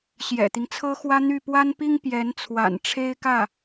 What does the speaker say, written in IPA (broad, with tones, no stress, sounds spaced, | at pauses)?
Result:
ɕ j ɛ̰˨˩ t̪ i˦ ŋ t͡sʰ ɤ˥ x w ä˥ n̪ y˥˩ p w a˥ n p i˥ ŋ p j ɛ˧˥ n t͡sʰ w a̰˨˩ n ʈ͡ʂʰ e˥ ɪ̯ k ä˥˩